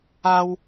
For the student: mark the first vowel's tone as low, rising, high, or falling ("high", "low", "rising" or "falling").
high